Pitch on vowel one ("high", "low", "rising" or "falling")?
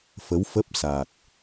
rising